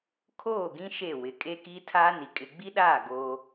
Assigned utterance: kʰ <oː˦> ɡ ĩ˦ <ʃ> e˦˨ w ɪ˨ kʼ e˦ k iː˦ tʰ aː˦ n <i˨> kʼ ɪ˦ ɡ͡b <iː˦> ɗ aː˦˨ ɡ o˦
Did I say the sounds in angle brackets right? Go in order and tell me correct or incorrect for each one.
incorrect, correct, correct, incorrect

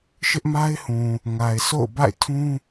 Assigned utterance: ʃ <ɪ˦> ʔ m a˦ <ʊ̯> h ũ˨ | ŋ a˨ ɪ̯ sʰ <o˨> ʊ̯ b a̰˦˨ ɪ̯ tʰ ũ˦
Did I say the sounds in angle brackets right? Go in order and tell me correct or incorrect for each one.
correct, incorrect, incorrect

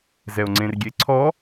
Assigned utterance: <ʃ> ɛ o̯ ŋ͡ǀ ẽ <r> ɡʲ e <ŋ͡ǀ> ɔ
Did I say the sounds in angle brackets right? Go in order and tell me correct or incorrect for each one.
incorrect, correct, incorrect

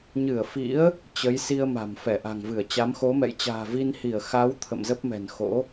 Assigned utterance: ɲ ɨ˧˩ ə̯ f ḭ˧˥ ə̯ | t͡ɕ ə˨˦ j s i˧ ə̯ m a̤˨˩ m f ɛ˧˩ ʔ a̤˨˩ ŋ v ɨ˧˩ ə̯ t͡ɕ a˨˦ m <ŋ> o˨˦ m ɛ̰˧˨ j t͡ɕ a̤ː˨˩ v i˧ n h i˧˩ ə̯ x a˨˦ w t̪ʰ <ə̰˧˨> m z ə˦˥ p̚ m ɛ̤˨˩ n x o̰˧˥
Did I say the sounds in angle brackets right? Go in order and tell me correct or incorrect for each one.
incorrect, correct

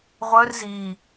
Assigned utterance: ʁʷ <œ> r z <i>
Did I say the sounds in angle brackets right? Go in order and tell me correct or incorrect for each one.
correct, correct

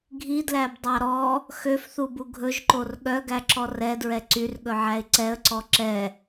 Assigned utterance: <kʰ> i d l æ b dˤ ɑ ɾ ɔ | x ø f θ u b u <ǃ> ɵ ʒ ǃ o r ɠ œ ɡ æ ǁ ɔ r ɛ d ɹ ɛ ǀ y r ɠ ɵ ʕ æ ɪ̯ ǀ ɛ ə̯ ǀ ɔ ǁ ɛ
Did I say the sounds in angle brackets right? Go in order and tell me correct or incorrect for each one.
incorrect, incorrect

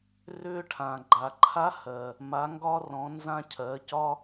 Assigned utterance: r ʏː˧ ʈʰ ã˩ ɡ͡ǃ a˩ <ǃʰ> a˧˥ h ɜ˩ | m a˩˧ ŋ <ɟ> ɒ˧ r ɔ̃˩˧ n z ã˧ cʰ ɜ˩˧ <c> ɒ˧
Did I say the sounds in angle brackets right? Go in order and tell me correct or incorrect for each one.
correct, incorrect, correct

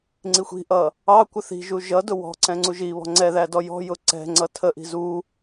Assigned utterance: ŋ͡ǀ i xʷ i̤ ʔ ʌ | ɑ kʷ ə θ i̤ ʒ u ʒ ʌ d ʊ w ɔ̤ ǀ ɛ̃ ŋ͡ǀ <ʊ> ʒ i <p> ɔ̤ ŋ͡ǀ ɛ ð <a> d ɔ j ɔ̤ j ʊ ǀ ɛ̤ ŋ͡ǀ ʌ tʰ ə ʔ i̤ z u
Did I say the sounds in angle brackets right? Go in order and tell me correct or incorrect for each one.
incorrect, incorrect, incorrect

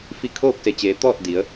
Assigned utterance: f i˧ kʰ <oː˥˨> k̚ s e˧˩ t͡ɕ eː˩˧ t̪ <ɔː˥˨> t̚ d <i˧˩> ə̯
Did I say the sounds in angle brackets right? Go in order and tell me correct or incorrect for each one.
correct, correct, incorrect

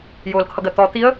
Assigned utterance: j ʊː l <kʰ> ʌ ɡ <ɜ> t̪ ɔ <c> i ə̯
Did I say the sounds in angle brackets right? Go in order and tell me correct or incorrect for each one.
correct, correct, incorrect

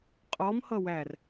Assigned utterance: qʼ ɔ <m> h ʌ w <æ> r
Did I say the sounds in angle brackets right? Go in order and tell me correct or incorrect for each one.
correct, correct

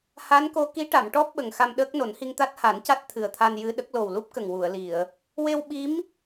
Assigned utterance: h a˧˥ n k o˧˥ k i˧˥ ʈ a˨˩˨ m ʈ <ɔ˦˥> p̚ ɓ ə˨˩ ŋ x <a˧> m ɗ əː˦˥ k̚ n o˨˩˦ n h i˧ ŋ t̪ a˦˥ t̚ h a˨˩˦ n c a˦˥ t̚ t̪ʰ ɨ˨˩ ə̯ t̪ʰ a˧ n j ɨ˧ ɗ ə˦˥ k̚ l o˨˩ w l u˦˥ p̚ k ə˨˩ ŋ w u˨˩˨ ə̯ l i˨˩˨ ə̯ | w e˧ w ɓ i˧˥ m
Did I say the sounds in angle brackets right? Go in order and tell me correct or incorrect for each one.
correct, correct

